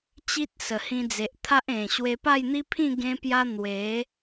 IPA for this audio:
t͡ɕi˦t̚ sə˨˩hĩ˧d͡ze˨ʔ t̪ʰa˦ʔẽ˨˩ ɕwe˧pa˥˧jn̪i˦pʰĩ˥˧ ɡẽ˦pja˦ n̪we˨˦

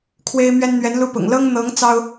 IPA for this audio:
kʰwe˦ɪ̯mɥɛ˦nn̪ɥɛ˨˦nlu˥˨ pʊ̰˨˩ŋ lɤ˦ŋn̪ɤ˨˦ŋ t͡sɑ˦ʊ̯

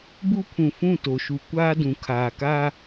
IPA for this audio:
bu˦pʰũ˨fũ˦˨ to˨ʃu˨ kʷaː˦dũ˨ kʰaː˨kaː˦

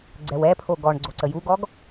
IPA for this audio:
ɡ͡ǀɛwɛpʰo ɡɔɳ ɡ͡ǀoǀəjuɡɔɡ

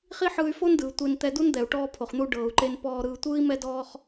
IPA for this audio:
χi˥ħɯː˧y̯fo˥ndɯː˩ tʷe˧n t̪ɛ˧du˥nd̪ɛ˩u̯ ʈɔː˧pʰo˩χn̪u˧ ɖɤː˩u̯ǃe˧npɔː˧ɾɯː˧ tʷɯː˥i̯mɛ˥dɔː˥χ

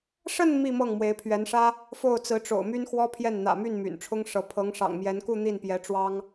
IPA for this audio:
ʂə˥˧n mi˥˧mɤ˥˩ŋ mwe˧˥ɪ̯pʰɥɛ˧˥n ʂä˥ | fo˥˩ʊ̯t͡sɹ̩˧˥ʈ͡ʂo̰˨˩ʊ̯my˥n xwɔ˥pʰjɛ˥˩n n̪ä̰˨˩my˥˩n my̰˨˩nʈ͡ʂʰʊ˥ŋʂɤ˧˥ pʰɤ˧˥ŋʂɑ̰˨˩ŋmjɛ˧˥nku˥˧ n̪i˥˩npjɛ˧˥ʈ͡ʂwɑ˥ŋ

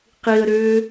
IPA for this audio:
qiə̯ɾʏː

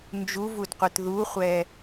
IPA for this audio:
nd͡ʒuvudqʷɨt ðuχʷɛ

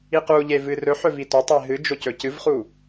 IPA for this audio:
iquʎe vɨrɵħɵ vitɵtˤe ɦɨd͡ʒo cɵcɨvχu

